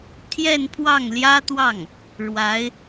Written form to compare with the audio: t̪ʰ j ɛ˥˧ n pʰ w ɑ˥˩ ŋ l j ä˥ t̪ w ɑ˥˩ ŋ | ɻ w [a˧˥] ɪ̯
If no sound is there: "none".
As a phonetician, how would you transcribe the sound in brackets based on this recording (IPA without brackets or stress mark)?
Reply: a˧˥